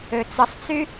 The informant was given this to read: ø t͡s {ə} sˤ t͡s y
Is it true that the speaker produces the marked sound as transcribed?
yes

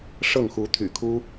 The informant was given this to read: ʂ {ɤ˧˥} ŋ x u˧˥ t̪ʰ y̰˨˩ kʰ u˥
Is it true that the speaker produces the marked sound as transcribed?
no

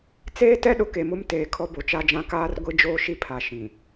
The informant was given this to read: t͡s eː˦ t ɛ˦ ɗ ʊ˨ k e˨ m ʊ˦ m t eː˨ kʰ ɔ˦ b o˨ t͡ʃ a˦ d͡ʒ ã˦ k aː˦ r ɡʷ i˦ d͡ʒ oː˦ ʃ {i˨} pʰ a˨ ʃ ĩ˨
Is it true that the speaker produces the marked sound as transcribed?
no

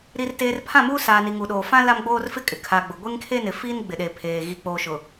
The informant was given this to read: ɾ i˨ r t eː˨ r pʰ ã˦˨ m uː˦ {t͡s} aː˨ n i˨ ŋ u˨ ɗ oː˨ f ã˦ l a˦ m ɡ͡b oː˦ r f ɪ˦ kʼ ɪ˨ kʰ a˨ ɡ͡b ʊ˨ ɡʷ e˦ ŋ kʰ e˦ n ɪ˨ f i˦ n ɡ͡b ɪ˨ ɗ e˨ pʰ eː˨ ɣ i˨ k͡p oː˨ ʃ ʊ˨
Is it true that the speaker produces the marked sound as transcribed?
no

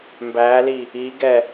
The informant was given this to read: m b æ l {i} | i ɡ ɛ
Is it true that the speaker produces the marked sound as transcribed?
yes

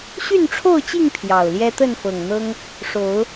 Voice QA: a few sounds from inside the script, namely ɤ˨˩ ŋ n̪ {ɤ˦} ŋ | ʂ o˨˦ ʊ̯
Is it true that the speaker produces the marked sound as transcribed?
yes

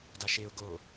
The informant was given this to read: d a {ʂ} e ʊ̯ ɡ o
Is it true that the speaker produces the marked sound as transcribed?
no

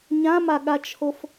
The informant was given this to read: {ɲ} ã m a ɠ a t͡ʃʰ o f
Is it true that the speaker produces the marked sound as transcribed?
yes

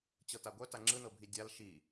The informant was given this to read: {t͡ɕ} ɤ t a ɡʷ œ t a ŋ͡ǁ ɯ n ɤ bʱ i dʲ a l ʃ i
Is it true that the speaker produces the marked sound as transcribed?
yes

